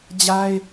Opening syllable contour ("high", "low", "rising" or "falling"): high